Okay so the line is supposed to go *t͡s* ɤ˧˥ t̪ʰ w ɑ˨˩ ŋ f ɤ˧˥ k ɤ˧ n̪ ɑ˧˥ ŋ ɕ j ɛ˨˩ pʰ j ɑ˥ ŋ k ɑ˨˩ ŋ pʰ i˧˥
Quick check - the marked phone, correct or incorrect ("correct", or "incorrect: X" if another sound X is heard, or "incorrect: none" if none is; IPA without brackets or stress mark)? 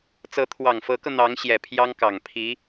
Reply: correct